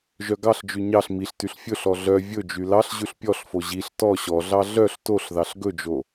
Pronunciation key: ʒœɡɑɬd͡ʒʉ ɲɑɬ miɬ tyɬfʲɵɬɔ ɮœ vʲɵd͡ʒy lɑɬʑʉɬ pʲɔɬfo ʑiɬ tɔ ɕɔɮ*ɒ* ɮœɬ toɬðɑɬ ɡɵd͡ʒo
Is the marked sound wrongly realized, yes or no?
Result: yes